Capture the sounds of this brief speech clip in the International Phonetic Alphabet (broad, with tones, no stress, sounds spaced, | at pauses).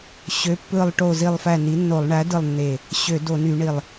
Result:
ɕ ø˩˥ pː ɯ˧˩ lˠ ʈ o˧˩ z i˧˩ lˠ f æ˧˩ n i˩˥ nː o˧˩˧ lˠ ɳ æ˩˥ d ɯ˧˩ lˠ nː e˧˩ | ɕ ø˧˩˧ d o˧˩˧ n y˧˩˧ ɳ i˧˩ lˠ